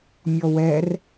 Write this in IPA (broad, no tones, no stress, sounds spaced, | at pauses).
mʲ ɔ w ɛ r